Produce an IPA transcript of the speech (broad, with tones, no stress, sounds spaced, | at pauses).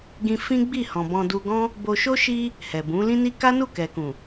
ɡ ĩ˧ f ĩ˦ ɡ͡b i˦˨ h ɔ̃˨ b ɔ̃˧ d u˧ ɡ ɔ̃˦ | b o˧ ʃ o˦ ʃ i˦ | h ɛ˨ b ũ˨˦ l ĩ˧ n i˧ k a˦ n u˦˨ k ɛ˨ k ũ˨